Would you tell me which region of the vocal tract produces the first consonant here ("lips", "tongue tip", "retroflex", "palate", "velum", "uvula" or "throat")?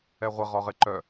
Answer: uvula